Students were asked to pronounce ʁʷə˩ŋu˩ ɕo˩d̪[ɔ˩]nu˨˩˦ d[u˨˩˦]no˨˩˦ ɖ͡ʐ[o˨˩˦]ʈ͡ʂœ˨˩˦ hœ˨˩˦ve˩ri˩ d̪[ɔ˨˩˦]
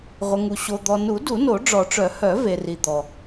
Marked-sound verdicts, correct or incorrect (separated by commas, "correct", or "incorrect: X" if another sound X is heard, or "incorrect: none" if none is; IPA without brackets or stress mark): correct, correct, incorrect: ɔ˨˩˦, incorrect: ɔ˩